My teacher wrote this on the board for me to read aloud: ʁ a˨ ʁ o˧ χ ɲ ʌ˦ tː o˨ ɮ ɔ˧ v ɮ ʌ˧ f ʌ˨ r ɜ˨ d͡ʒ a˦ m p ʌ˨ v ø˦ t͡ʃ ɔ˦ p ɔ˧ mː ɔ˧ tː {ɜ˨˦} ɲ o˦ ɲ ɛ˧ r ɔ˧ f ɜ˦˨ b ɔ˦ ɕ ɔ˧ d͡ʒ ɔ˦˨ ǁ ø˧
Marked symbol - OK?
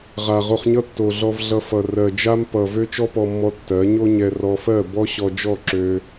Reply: yes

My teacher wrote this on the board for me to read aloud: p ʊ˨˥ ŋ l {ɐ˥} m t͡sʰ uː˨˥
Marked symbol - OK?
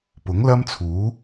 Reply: yes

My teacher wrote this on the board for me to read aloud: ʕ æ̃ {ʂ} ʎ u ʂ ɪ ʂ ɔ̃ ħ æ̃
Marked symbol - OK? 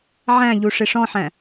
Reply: no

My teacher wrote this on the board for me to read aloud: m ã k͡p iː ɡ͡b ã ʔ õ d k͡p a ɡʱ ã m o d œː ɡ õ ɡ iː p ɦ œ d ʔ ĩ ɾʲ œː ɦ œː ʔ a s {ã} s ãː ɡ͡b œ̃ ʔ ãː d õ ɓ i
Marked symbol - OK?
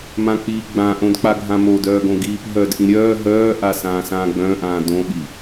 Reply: no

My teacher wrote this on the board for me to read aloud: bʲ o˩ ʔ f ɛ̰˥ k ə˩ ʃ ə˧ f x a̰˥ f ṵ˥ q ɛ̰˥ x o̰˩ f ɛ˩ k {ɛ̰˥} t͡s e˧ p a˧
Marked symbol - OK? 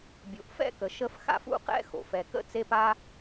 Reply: no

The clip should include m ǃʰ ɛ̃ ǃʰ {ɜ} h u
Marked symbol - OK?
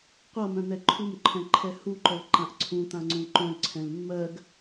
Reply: no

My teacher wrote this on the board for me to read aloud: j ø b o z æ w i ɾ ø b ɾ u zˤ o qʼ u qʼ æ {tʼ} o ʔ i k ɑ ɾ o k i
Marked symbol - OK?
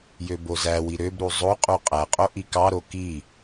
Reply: no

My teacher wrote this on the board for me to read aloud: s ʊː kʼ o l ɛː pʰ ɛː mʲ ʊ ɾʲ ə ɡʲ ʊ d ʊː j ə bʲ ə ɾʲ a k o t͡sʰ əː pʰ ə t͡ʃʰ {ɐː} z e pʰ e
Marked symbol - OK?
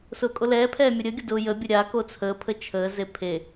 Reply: no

